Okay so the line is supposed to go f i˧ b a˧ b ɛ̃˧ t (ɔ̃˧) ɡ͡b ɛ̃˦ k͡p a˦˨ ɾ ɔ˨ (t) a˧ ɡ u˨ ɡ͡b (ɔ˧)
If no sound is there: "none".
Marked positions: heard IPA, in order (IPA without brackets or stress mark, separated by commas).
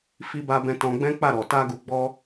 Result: ɔ̃˧, t, ɔ˧